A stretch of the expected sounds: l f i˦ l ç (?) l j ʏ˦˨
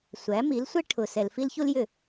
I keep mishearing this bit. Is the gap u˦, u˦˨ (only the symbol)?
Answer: u˦